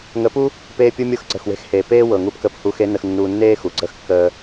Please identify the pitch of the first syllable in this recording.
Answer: rising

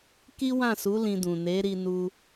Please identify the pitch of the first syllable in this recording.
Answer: high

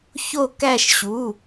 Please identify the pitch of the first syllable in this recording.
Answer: falling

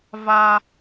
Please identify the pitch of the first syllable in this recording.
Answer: high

